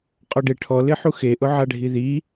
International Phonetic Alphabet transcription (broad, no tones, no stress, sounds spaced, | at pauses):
qʼ ɔ ɖ e ʈʰ ɔ l ɪ ħ u x e ʔ ʊ ʕ a ɖʱ i ð i